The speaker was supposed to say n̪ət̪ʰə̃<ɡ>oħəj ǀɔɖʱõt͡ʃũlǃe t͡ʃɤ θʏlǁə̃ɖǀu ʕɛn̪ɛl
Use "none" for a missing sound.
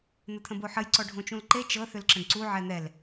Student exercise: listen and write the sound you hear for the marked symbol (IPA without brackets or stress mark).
b